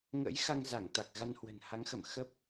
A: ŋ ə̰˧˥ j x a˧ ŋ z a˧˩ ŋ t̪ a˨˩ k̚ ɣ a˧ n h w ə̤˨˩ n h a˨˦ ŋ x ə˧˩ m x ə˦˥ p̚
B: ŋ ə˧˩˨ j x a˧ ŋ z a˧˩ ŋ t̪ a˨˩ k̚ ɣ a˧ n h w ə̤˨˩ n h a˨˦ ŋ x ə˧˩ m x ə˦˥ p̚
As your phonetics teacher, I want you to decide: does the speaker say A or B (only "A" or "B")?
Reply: A